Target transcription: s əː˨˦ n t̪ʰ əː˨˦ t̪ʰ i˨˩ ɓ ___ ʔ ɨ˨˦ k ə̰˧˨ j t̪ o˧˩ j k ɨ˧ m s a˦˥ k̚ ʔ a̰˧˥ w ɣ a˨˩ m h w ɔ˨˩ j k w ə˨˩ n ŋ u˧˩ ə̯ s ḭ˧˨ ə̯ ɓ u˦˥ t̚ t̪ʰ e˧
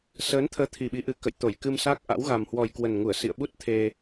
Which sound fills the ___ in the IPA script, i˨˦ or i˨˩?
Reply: i˨˦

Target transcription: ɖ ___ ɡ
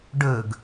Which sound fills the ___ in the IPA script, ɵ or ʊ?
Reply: ɵ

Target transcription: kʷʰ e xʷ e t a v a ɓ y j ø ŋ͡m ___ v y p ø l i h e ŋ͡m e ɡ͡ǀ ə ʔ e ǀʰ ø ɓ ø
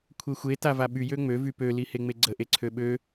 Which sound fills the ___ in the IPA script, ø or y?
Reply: ø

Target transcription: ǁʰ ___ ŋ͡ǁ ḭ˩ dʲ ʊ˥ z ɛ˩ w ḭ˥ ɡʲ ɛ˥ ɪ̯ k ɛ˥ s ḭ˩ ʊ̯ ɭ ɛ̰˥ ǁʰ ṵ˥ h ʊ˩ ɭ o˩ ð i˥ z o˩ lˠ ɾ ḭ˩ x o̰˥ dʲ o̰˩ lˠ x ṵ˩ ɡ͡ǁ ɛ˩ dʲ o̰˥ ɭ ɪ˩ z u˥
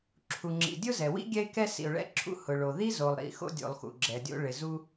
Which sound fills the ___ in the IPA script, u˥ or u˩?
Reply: u˩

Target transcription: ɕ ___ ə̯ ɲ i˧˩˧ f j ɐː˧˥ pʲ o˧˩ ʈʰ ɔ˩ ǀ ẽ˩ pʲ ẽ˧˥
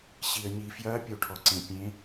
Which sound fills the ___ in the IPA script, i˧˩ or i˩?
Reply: i˩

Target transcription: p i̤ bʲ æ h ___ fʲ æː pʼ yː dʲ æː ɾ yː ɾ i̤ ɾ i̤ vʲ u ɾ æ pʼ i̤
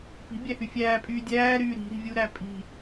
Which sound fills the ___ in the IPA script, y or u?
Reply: y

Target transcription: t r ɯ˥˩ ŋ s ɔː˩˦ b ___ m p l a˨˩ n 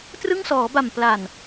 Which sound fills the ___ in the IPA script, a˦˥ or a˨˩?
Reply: a˨˩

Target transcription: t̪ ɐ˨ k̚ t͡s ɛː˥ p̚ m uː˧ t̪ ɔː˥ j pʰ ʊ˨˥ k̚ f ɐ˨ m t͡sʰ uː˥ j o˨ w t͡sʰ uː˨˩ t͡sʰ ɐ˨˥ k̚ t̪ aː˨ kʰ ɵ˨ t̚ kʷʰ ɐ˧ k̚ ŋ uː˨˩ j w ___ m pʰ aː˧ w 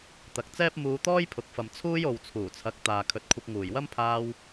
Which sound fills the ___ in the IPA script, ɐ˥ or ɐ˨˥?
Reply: ɐ˥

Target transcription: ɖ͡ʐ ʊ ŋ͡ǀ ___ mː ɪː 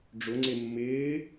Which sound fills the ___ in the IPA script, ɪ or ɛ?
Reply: ɪ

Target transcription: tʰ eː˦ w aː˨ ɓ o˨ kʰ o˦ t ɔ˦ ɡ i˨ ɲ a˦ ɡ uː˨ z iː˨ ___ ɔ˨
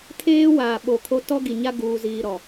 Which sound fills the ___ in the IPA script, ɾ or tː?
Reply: ɾ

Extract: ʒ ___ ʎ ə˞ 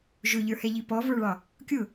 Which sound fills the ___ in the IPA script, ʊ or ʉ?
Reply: ʊ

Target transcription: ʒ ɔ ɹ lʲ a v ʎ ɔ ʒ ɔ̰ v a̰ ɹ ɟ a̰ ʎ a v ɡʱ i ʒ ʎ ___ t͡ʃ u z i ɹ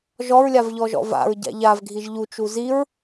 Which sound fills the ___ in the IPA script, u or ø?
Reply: u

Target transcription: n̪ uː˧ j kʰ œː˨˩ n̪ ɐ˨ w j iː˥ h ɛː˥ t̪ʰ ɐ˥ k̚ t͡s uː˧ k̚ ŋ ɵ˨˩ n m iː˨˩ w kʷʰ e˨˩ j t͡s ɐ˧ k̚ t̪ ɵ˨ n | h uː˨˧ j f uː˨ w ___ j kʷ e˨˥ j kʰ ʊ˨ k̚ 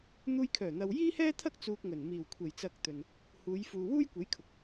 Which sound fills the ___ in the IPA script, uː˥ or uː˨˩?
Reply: uː˥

